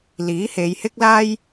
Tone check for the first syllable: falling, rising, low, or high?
rising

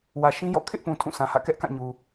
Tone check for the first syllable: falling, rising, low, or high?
low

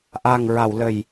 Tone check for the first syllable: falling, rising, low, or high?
low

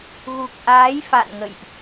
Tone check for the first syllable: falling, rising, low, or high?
low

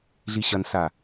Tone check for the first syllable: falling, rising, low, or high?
low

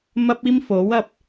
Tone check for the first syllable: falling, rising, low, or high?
high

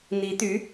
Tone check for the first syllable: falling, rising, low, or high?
rising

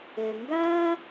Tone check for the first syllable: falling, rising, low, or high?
low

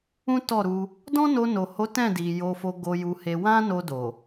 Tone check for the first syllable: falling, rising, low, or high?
high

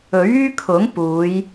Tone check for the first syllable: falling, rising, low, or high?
rising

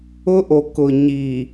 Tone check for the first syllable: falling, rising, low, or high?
high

